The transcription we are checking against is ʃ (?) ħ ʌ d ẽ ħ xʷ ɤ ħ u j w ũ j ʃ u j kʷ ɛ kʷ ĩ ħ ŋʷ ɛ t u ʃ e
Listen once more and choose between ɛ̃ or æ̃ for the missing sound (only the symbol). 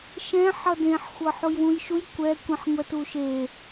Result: ɛ̃